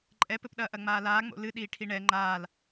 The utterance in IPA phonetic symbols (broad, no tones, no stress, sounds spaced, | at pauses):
ǃʼ ɛ p ɘ p ɗ ɐː ʔ ɐ ŋ͡m aː l aː ŋ͡m o̰ l ɨ ɗ iː ʈʰ i ɳ ɛ ŋ͡ǃ aː l